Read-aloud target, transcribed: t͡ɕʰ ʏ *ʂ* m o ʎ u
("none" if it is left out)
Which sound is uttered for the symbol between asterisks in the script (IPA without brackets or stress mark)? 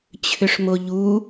ʂ